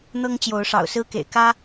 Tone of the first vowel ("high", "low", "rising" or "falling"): high